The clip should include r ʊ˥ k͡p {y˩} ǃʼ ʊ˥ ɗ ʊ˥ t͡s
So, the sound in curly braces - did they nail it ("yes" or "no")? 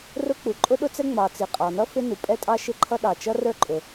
no